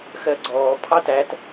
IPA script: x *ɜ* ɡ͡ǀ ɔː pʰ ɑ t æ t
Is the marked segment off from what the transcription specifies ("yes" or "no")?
no